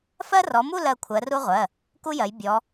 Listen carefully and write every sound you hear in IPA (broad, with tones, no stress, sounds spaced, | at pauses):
f ɜ˥ r ɔ˨˦ m u˥˧ l ɜ˩˧˩ kʷʰ ɜ˨˦ r u˥ ʁʷ ɜ˩˧˩ | k u˥ j ɜ˨˦ j bʲ ɔ˨˦